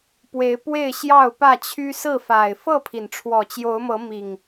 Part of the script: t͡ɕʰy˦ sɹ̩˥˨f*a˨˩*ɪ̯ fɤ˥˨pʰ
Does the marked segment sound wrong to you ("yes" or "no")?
no